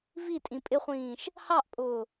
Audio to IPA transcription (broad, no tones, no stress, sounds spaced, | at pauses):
v i tʼ ĩ pʼ ɪ χʷ ĩː ʃ | h ɑ ʔ pʼ ʊː